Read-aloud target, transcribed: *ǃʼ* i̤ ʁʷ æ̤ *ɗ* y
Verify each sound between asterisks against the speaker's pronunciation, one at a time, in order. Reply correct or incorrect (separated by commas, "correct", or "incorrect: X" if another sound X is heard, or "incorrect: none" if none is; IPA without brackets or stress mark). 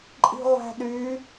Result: correct, correct